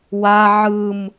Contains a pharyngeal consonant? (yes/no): yes